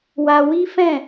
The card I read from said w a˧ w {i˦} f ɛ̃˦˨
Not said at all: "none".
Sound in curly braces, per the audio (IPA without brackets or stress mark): i˦